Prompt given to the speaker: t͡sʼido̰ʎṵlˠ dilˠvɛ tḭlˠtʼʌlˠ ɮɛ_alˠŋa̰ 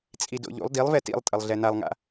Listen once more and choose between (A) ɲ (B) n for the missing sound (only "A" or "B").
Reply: B